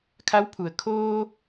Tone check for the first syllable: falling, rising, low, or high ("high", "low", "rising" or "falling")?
rising